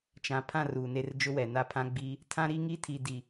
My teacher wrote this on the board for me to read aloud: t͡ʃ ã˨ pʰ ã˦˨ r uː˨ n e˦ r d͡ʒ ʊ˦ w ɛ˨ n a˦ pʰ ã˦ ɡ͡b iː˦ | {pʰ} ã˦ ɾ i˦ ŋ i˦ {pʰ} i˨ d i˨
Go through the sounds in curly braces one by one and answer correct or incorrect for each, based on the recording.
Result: incorrect: tʰ, incorrect: tʰ

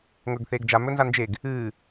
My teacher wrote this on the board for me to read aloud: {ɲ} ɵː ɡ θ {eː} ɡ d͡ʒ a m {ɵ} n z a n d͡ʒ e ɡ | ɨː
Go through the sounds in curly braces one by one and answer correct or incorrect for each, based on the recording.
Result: incorrect: ŋ, correct, correct

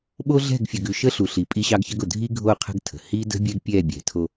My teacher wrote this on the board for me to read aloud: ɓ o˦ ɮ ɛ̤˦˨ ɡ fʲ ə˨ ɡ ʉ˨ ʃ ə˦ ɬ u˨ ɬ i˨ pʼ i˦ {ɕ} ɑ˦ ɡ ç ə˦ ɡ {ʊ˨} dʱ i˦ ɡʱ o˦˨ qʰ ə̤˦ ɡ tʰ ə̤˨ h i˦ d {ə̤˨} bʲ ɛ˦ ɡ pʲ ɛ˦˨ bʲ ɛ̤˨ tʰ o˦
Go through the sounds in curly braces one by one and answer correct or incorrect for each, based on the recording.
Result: correct, correct, incorrect: ə̤˦

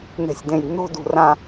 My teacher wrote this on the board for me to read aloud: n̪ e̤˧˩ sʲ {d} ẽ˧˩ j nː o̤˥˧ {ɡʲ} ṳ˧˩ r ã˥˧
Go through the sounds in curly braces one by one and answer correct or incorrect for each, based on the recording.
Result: correct, incorrect: d

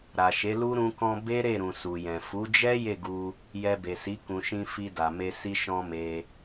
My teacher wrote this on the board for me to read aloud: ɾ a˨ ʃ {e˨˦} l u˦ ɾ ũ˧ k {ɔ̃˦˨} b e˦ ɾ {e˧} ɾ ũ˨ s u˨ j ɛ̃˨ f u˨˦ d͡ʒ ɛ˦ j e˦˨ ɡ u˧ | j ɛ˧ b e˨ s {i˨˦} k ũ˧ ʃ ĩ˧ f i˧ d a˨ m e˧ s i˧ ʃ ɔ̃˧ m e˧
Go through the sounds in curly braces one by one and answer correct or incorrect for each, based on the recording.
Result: correct, incorrect: ɔ̃˧, incorrect: e˦˨, correct

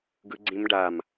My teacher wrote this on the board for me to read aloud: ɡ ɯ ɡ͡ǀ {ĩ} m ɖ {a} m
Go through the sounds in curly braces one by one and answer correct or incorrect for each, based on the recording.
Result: correct, correct

